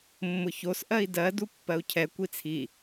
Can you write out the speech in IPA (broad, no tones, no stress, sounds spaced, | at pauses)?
mː ʊ ç o s ʔ ɜ i̯ d ɜ d u pː ɜ u̯ cʰ ɛ kʷ i t͡sʰ i